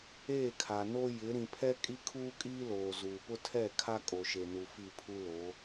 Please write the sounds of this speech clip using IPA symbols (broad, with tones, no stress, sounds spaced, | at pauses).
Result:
eː˦˨ kʰ a˨ n o˦ j ɪ˨˦ ɾ ĩ˨ pʰ ɛ˦ kʼ i˦ kʰ uː˦ kʼ iː˦ l oː˨ z uː˨ p ʊ˦ tʰ ɛ˦˨ kʰ a˦ kʼ o˨ ʃ e˨ n u˨ f i˦˨ pʰ u˦ l o˨˦